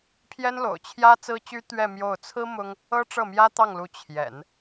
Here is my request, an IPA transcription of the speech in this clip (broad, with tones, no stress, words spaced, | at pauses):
pʰjɛ˥nlo̰˨˩ʊ̯ t͡ɕʰjä˥ t͡sɹ̩˥t͡ɕy˥ t̪ɥɛ˥˧mjo˥˩ʊ̯ t͡sʰɹ̩˥ mʊ˥ŋ | ɤ˥ʈ͡ʂɤ˥˩mjä˥ t̪ɑ˥˩ŋlu˧˥ t͡ɕʰjɛ̰˨˩˦n